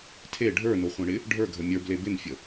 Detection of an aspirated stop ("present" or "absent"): present